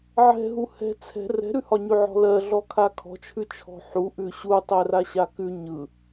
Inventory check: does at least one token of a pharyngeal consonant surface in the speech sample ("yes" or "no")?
yes